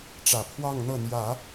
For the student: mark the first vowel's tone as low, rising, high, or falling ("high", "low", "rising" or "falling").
low